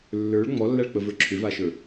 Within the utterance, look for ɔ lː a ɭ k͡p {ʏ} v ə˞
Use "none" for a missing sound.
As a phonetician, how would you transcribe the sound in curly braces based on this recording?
ə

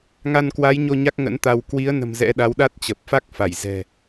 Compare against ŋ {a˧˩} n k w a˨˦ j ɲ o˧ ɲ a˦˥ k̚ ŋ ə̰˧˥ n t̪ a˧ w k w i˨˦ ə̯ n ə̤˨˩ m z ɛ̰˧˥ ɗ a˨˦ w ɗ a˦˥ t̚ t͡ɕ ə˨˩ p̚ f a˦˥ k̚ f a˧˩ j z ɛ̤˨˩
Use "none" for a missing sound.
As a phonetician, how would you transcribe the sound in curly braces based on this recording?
a˧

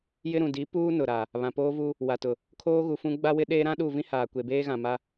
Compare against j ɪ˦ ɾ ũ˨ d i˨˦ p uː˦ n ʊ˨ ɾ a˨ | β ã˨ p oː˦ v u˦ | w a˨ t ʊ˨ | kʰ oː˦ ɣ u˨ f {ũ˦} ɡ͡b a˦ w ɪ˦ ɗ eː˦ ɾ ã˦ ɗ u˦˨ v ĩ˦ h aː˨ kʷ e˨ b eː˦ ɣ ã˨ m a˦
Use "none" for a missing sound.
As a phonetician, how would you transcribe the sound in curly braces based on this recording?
ũ˦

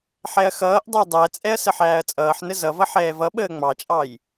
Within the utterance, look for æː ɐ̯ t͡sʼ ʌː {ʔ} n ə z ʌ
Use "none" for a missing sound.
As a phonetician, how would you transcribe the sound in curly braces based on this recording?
ħ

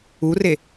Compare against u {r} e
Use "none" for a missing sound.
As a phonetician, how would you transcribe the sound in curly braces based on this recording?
r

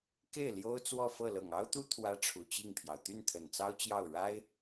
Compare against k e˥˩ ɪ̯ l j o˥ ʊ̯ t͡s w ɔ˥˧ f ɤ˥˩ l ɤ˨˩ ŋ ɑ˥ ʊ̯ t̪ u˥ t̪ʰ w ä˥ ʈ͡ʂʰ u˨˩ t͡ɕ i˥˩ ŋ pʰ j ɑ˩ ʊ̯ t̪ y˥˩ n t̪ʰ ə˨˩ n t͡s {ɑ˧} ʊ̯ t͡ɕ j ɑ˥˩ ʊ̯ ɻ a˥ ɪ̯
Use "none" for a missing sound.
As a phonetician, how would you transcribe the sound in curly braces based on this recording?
ɑ˥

